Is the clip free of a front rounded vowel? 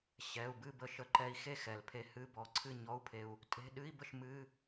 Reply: yes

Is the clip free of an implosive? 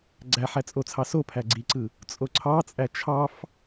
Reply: yes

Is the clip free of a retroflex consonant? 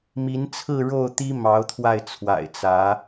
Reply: no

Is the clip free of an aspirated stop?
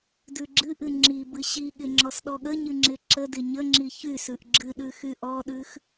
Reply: yes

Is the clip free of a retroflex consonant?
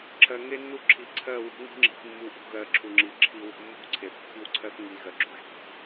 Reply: yes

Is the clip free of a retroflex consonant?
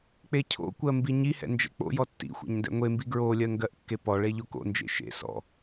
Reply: no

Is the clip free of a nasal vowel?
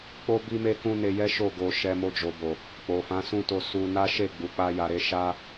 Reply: no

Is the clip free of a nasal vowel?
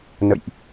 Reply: yes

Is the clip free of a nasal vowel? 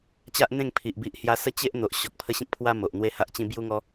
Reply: no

